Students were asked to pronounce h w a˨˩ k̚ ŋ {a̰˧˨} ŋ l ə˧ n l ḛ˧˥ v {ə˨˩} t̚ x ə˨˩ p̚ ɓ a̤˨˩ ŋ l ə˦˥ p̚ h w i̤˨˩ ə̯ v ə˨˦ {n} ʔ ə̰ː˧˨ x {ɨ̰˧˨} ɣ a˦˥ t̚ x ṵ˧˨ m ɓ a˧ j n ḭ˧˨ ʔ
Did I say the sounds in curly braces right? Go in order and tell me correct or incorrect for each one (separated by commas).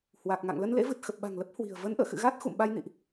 correct, incorrect, correct, correct